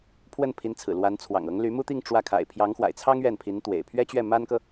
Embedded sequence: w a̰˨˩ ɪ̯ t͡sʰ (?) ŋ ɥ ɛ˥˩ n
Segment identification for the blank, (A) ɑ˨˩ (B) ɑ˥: B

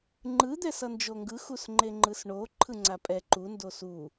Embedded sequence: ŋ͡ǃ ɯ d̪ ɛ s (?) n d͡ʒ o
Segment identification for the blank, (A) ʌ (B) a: A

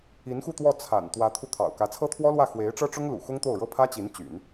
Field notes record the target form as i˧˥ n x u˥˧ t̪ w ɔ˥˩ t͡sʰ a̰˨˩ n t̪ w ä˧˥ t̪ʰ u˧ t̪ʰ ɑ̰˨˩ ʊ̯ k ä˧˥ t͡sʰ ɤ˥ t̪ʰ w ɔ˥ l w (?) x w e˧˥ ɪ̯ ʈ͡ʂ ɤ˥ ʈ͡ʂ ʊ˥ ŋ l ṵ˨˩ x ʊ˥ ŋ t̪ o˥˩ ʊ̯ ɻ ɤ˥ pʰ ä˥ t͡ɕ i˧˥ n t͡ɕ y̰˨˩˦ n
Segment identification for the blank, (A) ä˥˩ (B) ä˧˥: A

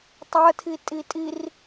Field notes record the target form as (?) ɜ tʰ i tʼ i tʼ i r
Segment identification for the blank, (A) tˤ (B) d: A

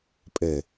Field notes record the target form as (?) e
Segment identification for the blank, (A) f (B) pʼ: B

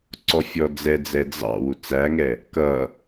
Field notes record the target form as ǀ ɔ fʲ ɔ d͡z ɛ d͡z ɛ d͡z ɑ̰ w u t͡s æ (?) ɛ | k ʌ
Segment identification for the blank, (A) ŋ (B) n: A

